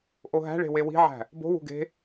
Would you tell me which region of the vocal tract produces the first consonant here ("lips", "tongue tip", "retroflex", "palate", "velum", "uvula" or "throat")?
throat